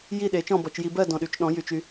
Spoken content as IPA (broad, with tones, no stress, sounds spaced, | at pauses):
j i˥˧ ɗ e˨˥ t͡ʃ ɔ̃˥˧ b ɔ˧˩˧ t͡ʃ j i˧ b ɜ˥˧ d ɔ̃˧ ɗ y˨˥ t͡ʃ ɗ ɔ̃˨˥ j y˧ t͡ʃ y˨˥